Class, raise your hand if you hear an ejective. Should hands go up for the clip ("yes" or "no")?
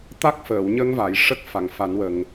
no